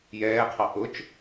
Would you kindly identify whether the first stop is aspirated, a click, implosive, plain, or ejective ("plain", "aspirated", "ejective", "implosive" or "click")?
aspirated